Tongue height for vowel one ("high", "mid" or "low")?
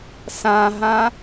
low